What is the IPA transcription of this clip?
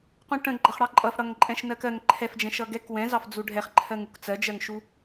q ũ ʈ ə̃ ɡ͡ǃ ʌ χ ɽ ɑ ǃʼ ʌ f ɽ ʌ ŋ ǃʼ ɛ̃ ʃ n ɜ k ɜ ŋ ǃʰ ɛ f d͡ʒ ɛ̃ ʃ ʌ ɡ ɛ k w ɛ̃ z ɑ f d͡z u ɖʱ ɛ χ ǃʰ ɜ ŋ u k t͡s ɜ d͡ʒ ɜ ŋ ʃ u

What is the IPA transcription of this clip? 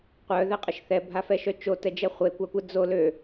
qʷ œ ð ɛ qʼ ə ʃ θ ɛ bʱ a f ɛ ʃ œ t͡ʃ o t ɛ d͡ʒ ɛ χʷ e kʷ a kʷ ə d͡z o l ø

